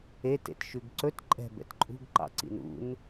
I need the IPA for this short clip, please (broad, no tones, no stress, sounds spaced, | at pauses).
e t ḛ t ʃ ʉ ɡ ǀ ɵ t ǃʼ ɛ̤ b ɛ̰ t ǃʼ ṳ ɡ ǃ ɑ̰ ǀ ḭ n ṵ n